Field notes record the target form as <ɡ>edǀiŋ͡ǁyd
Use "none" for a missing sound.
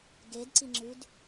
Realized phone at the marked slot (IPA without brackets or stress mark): ɡ